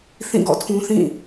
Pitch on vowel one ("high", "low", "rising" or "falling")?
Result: falling